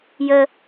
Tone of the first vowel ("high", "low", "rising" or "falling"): low